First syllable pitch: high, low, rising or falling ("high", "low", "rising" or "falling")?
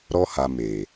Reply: high